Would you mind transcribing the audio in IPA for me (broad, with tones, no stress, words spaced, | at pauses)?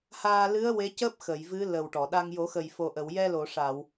haː˧lɨ˧˥ə̯ we˧˥cəː˦˥p̚ xə˨˩˨j vɨ˧˥ lə˨˩wʈɔ˨˩˨ɗa˧ŋ jo˨˩˦xə˨˩jfo˨˩ ʔə˨˩˨wjɛ˧lo˨˩˨ʂa˨˩˨w